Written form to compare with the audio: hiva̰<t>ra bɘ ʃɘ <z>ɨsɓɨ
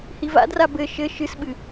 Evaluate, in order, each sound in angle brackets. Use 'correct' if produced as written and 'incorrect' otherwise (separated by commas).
incorrect, incorrect